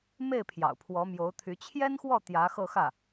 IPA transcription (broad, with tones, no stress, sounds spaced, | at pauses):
m e˥˩ ɪ̯ pʰ j ɑ̰˨˩ ʊ̯ pʰ w ɔ˧˥ m j o˧˥ ʊ̯ t̪ʰ y˧˥ t͡ɕʰ j ɛ˥ n x w ɔ˥˩ t̪ j ä˧˥ x ɤ˥˧ x ä˥˩